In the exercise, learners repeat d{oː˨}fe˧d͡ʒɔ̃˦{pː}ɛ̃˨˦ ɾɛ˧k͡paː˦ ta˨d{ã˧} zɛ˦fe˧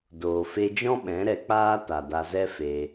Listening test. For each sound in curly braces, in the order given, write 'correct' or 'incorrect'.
correct, incorrect: ɓ, incorrect: a˧

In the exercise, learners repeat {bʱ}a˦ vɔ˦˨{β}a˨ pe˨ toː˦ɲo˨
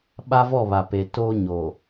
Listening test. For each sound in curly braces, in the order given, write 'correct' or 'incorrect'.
incorrect: ɓ, correct

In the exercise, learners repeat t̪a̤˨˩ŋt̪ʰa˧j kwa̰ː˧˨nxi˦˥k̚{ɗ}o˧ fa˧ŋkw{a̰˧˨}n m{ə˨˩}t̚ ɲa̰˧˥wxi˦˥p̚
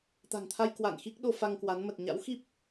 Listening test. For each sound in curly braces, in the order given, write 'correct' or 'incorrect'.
correct, incorrect: a˨˦, correct

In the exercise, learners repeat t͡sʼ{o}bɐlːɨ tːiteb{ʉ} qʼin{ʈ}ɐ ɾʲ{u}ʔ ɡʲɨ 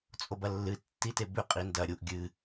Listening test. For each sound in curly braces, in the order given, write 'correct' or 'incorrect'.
correct, correct, incorrect: d, correct

